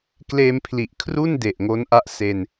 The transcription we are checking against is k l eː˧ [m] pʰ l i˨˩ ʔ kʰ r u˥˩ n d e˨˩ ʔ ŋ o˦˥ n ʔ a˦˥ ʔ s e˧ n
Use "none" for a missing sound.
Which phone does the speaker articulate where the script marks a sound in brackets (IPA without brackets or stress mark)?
m